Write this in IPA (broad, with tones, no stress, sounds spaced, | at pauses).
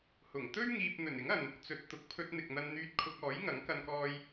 h ʊ˨˩ ŋ t̪ ɵ˥ ɥ ŋ iː˨ p̚ n̪ ɵ˨˩ n ɪ˨˥ ŋ ɐ˨ n | t͡s ɵ˨ t̚ t̪ ʊ˨ k̚ pʰ ɵ˧ t̚ n̪ ɪ˨ k̚ n̪ ɐ˧ n n̪ yː˧ t̚ kʰ ʊ˧ k̚ ɔː˨˥ j ŋ ɐ˨˥ ŋ k ɐ˧ n k ɔː˧ j